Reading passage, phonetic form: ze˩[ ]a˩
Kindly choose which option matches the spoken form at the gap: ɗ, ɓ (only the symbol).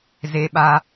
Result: ɓ